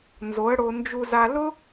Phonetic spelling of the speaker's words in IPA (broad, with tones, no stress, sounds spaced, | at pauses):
n z o˨˦ ə̯ ɽ o˧ n d͡ʒ u˧ z a˧ l ʊ˦